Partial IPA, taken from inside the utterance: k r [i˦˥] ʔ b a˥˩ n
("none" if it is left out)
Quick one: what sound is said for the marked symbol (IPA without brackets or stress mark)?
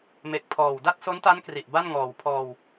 i˨˩